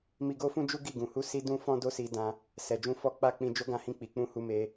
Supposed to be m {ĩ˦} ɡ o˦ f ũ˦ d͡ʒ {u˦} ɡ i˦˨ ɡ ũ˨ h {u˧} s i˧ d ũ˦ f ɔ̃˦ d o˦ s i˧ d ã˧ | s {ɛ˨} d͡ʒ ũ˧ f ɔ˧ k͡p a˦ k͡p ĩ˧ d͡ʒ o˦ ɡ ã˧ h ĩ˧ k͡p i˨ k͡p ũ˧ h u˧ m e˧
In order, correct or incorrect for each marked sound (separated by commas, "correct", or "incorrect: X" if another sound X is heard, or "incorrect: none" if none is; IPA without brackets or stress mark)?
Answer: incorrect: i˦, correct, correct, correct